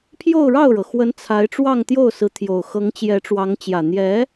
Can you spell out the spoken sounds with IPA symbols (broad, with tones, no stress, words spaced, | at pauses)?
pʰjo˥˧ʊ̯ɻɑ˥˩ʊ̯ɻɤ˩xwə˧˥n t͡sʰa˧˥ɪ̯ʈ͡ʂwɑ˥˧ŋt̪jo˥˩ʊ̯sɹ̩˧˥ t̪ʰjo˨˩ʊ̯xɤ˧˥ŋ t͡ɕjɛ˧˥ʈ͡ʂwɑ˧˥ŋ t͡ɕjä˨˩n̪jɛ˧˥